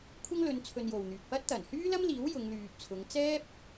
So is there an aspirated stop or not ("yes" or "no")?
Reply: yes